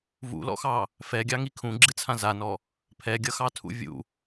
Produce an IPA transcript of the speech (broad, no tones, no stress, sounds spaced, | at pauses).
v ṵ l ɔ̰ x ɑ | f ɛ ɡʲ ɑ ŋ i kʰ ũ ɡ͡ǁ ɨ t͡sʰ ã z a n ɔ | pʰ ɛ ɡʲ ʌ x ɑ tʰ ṵ vʲ ṵ